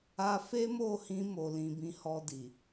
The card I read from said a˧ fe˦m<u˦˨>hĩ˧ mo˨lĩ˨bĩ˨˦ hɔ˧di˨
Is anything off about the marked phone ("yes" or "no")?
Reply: yes